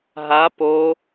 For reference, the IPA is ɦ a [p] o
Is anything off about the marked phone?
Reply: no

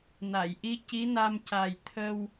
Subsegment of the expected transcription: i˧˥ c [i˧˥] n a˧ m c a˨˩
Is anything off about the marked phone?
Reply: no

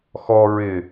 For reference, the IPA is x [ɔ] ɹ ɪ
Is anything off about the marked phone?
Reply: no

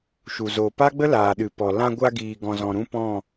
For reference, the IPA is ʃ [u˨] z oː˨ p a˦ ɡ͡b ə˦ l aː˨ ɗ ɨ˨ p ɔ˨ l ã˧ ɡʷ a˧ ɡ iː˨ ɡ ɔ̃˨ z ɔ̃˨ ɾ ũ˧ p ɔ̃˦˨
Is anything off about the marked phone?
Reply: no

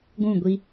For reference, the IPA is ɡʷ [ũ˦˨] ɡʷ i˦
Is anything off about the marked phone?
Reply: no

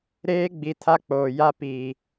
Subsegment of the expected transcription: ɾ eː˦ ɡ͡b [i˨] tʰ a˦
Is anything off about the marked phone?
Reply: no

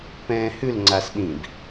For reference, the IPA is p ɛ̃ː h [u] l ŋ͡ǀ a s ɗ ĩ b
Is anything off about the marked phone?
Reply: yes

